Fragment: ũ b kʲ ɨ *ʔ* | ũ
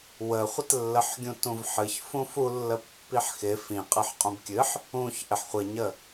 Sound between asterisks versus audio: incorrect: ħ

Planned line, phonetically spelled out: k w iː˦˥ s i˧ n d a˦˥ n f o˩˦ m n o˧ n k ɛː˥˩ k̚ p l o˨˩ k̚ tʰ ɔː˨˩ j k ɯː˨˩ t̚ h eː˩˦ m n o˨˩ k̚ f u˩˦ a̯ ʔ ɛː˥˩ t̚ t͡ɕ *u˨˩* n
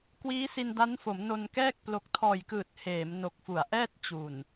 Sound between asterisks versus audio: correct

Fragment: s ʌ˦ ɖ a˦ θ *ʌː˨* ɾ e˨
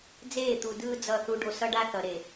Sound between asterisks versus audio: incorrect: ʌ˨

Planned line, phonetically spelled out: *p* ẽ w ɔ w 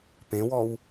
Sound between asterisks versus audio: correct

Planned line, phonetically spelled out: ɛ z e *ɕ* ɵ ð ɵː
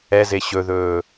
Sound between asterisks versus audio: correct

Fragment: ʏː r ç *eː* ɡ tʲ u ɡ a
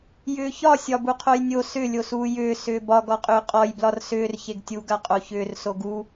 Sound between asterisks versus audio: incorrect: e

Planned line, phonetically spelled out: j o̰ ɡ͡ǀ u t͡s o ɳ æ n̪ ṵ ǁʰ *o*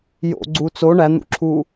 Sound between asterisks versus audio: incorrect: u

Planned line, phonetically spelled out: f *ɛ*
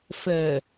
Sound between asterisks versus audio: incorrect: ɜ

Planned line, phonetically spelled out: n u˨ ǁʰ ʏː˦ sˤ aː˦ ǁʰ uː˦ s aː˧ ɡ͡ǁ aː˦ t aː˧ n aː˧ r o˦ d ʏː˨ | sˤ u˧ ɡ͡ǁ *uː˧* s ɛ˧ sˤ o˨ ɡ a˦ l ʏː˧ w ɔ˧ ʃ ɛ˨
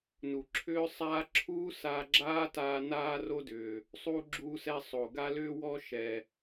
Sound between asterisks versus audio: correct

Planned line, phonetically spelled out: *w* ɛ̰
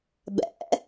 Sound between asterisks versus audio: incorrect: b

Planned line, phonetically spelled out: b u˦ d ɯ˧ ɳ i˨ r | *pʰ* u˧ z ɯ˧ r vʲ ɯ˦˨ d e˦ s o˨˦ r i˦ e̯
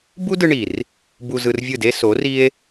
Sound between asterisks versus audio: incorrect: b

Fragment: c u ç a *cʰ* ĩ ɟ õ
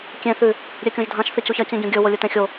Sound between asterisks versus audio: incorrect: c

